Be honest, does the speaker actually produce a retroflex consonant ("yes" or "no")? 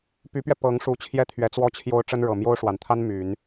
yes